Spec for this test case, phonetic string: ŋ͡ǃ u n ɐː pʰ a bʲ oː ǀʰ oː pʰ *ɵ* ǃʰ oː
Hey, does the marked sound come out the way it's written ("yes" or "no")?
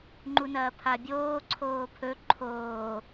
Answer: yes